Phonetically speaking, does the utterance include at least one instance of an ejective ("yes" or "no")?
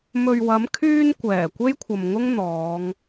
no